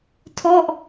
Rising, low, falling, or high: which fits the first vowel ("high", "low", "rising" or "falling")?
falling